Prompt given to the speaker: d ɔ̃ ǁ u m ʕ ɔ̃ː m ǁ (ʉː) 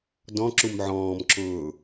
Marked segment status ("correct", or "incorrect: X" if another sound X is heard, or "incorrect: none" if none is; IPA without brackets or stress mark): incorrect: ʊː